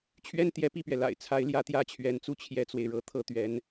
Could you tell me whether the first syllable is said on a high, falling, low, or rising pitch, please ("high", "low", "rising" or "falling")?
high